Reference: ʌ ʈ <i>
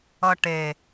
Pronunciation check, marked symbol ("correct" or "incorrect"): incorrect